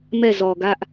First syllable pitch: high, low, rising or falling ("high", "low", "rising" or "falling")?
falling